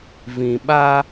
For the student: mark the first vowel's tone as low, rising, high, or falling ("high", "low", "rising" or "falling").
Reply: low